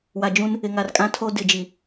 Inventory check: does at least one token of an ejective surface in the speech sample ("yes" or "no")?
yes